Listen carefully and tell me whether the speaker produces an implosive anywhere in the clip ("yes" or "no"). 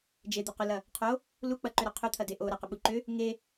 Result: yes